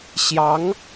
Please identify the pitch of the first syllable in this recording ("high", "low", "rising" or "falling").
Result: rising